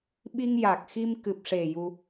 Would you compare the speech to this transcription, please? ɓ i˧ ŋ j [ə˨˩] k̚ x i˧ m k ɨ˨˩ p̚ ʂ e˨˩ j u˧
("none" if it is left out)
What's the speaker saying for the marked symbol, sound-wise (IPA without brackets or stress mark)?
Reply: a˨˩